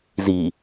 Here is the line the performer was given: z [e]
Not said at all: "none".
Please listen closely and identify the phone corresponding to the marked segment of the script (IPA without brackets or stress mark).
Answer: i